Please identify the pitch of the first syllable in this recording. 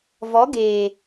rising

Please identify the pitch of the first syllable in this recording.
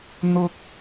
high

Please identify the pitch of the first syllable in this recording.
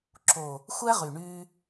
low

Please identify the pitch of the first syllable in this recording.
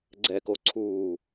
low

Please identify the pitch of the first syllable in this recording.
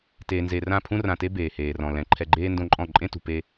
low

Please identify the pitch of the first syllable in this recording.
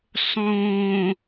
low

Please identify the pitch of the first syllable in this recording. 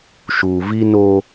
low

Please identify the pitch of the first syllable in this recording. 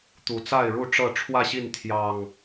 low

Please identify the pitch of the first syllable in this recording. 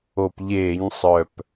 low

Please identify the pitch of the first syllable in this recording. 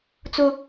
high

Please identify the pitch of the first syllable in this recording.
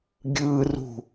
high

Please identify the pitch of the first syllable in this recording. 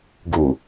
low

